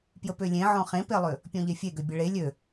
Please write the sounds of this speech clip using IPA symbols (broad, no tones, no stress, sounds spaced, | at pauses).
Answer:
p j ə p ø lʲ ẽ ʕ ɔ̃ χ ẽ p e lˠ ʏ | pʲ ɔ̃ ʎ e fʲ e ɡ ø bʲ ə ɭ e lʲ ø